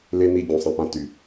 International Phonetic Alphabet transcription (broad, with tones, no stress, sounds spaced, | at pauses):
l e˦ n i˧ ɟ ũ˨ sˤ ẽ˧ p ã˧ t y˨